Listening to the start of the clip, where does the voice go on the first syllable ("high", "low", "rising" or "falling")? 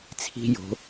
high